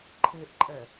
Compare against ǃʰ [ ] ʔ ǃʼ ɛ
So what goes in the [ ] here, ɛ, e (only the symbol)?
e